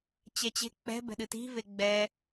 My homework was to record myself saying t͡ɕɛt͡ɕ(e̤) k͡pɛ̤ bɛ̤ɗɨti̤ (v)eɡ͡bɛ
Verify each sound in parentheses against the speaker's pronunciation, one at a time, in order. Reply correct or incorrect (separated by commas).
correct, correct